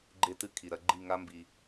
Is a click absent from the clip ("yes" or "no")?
no